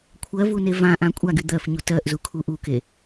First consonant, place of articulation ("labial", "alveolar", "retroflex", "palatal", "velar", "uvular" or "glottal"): velar